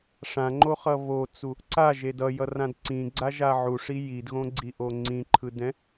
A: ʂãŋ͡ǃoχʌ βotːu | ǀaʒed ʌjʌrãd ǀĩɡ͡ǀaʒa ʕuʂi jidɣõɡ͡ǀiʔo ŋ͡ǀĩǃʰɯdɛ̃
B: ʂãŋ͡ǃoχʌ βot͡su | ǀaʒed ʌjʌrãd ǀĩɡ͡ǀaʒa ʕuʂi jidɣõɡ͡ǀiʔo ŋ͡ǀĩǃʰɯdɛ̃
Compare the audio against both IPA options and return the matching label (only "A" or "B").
B